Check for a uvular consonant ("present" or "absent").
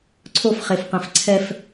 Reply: present